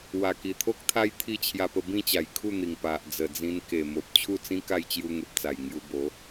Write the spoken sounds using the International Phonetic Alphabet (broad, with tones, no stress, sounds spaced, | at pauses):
w a˨˩ k i˨˩ t̪ʰ o˦ k̚ t̪ʰ a˦ j t̪ʰ i˥˧ t͡ɕʰ j a˧ p ə˧ b ĩ˥˧ t͡ɕ a˨˩ j kʰ u˥˧ n̪ i˨˩ ŋ p a˨ ʔ d͡z ə˨˩ d͡z ĩ˧ n k e˨˩ m o˨ p̚ t͡ɕʰ u˥˧ t͡s ĩ˦ k a˥˧ j t͡ɕ j u˧ ŋ e˨ p̚ t͡s a˨˩ j ŋ j u˧ b o˨˦